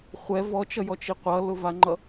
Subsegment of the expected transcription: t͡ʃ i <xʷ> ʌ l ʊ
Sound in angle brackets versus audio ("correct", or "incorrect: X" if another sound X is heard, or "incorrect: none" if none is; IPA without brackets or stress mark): incorrect: qʷ